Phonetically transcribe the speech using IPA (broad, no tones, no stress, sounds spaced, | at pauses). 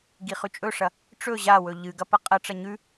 ɡ i χ ʉ t͡ʃʼ ɵ ʂ ɐ | ʈ͡ʂ ɵ ʑ a w ɵ ʎ ɨ ɡ ɐ p ɐ qʼ ɐ ʈ͡ʂ ɐ ɲ ʉ